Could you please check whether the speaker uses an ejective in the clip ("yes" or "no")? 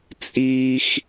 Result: yes